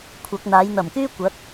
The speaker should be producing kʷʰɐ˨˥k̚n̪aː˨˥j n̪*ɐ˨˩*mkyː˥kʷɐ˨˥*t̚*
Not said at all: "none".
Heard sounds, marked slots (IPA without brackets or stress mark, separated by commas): ɐ˨˩, t̚